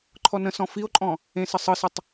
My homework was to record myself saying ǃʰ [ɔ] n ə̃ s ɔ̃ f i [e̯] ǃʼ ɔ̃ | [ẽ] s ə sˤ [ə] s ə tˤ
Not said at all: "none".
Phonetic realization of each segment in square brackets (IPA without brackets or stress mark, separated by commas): ɔ, o̯, ẽ, ɯ